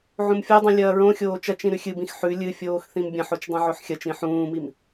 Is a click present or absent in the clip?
absent